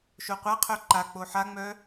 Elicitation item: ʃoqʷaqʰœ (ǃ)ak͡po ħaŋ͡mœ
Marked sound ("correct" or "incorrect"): correct